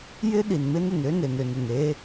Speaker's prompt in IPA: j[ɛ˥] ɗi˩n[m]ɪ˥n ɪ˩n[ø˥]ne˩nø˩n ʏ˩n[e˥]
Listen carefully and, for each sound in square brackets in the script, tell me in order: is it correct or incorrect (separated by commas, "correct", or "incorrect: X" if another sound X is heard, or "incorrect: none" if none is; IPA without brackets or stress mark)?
incorrect: ɪ˥, correct, correct, correct